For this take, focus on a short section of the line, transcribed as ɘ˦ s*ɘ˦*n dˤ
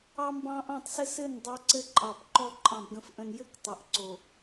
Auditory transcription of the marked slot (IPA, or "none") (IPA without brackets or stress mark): ɘ˦˨